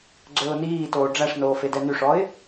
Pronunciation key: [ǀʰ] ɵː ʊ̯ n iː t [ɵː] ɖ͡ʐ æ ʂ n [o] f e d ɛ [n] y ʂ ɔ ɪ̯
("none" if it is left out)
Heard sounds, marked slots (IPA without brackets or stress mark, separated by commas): ɡ͡ǀ, oː, oː, n